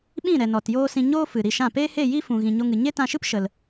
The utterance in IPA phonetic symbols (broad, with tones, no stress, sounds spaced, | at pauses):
ɓ ĩ˦˨ ɾ ɛ˨ n ɔ˨ t j oː˦ s ĩ˧ ɲ oː˦ f ɨ˨ ɾ i˧ ʃ ã˦˨ p eː˦ h e˦˨ j i˦ f ũ˨ ɣ ĩ˨ ɲ o˧ ŋ ɨ˨ ɲ e˦ t ã˧ ʃ ɨ˦ p ʃ ə˧ l